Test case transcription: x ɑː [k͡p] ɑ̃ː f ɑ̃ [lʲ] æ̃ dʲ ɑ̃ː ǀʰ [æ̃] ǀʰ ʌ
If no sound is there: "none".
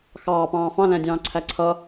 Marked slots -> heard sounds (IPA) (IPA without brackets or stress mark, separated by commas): p, l, æ